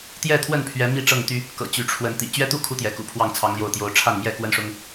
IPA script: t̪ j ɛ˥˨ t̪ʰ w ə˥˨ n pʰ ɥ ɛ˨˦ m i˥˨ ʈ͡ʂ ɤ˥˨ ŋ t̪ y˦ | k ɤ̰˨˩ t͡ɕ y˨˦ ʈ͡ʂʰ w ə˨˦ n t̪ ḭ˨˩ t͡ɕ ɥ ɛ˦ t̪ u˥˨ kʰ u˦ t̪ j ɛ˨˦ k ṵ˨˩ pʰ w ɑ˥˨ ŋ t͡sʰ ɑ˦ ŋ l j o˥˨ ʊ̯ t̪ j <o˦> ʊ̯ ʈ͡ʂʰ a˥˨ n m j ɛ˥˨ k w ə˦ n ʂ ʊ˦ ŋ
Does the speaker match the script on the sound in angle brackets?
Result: yes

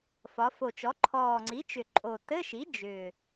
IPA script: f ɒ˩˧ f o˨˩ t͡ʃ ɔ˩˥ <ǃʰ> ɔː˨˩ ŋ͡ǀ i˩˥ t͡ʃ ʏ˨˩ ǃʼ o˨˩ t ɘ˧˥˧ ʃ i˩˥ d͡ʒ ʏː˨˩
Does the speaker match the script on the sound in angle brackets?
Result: yes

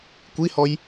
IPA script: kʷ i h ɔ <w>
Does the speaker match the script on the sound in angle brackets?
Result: no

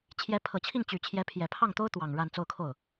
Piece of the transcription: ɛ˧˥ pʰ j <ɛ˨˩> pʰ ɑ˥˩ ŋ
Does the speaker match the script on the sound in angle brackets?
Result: yes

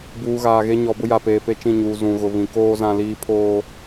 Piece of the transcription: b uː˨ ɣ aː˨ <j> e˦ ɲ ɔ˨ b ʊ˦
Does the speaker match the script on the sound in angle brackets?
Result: no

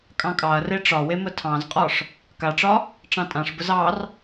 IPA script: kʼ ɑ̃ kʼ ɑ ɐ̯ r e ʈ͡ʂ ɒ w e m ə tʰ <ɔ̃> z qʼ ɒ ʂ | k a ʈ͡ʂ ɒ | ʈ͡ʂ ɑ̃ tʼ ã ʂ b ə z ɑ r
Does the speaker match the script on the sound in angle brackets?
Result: no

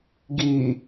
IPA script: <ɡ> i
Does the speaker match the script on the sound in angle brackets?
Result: yes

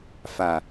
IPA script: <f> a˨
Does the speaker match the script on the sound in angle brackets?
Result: yes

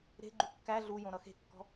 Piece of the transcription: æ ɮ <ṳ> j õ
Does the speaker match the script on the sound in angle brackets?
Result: no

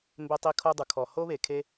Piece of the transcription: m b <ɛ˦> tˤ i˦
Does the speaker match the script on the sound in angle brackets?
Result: no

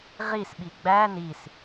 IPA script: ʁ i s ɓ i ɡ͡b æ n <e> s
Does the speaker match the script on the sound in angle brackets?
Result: no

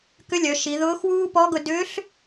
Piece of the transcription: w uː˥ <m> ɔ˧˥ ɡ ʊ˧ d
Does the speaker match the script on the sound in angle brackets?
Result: no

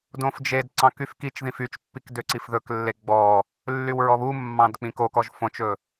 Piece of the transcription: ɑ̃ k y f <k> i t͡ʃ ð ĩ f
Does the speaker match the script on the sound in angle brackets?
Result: yes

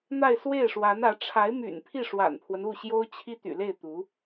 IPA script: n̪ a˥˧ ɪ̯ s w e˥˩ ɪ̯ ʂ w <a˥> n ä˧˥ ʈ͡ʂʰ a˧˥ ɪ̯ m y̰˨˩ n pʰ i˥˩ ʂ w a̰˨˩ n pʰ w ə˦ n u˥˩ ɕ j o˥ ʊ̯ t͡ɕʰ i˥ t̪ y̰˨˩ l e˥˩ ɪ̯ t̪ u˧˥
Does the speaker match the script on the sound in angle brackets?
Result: no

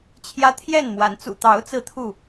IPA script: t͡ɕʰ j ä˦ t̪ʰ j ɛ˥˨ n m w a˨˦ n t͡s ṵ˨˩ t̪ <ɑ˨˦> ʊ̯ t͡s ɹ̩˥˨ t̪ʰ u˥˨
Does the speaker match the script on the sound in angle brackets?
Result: yes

